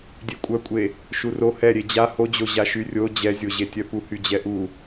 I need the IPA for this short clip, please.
dʲekʷʼœkʷʼe | ʃuro hɛɾʲe d͡ʑa hod͡ʑo ʑaʃyrʲo d͡ʑɛzʲoʑetʲœ puhyd͡ʑɛʔu

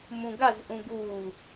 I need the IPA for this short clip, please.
mũɡaz ʔũɡu

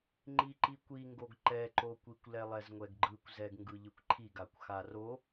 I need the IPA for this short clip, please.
ŋ͡ǃiǃikʷiŋɡoɡ ǃɛǃokʷikʷ lɛlˠɛzŋʷɛɡɡ͡ǃɯkʷ zɛɡŋɡɯʎɯkʷǃʰiɡ akʷxaro

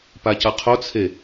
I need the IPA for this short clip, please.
pacʌqʰot͡sʰe

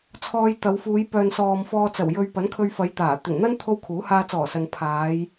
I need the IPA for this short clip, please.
t͡sʰɔː˧jt̪ɐ˨˧wfuː˨˧j pœː˨nsɔː˨mfɔː˧t͡sɐ˨˩w jɵ˧ɥ pɐ˨˥nkʰɵ˧ɥ fɐ˨˧jt̪aː˨˩ t̪ɪ˨˩ŋn̪ɐ˥n t̪ʰo˥wkʰuː˨˥ haː˧t͡sɔː˨˩sɐ˨n pʰaː˨˧j

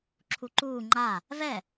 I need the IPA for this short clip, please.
ǁʰuǃuː ŋ͡ǃa | vɛ

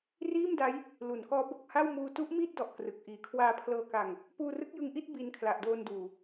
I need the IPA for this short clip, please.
riː˥˩mda˦˥j | lu˩˦nkɔː˦˥ bo˨˩k̚ha˥˩wmuː˧ tu˦˥ʔ miː˥˩t̚dɔ˨˩ʔ krɯ˨˩k̚ʔiː˨˩ kʰwaː˧pʰlɤː˧ka˧ŋ | puː˧rɯ˦˥k̚jɯ˧ŋʔi˥˩t̚ bi˧n kʰla˨˩ʔdoː˧nduː˨˩

